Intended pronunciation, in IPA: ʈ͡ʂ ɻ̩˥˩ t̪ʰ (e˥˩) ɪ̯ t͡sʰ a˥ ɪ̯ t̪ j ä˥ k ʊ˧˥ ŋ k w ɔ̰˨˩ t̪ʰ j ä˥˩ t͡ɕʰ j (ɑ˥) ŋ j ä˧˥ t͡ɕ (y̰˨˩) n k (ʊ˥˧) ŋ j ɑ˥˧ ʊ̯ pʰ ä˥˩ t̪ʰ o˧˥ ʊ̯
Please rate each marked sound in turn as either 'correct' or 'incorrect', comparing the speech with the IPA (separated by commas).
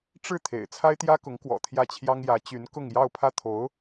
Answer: incorrect, correct, incorrect, correct